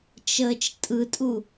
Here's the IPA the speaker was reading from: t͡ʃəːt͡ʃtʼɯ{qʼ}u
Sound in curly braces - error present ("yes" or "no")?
yes